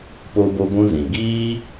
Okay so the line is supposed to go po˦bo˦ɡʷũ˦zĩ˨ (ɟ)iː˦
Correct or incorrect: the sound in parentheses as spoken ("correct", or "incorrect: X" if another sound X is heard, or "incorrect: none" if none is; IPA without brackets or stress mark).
incorrect: ɡ